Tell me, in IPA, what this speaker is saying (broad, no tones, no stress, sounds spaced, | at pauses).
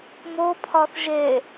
m o pʰ ɒ θ ʒ e